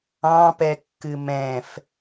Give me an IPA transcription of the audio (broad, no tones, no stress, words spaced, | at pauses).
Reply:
ɑ̃pɛkːɨ mɛ̃f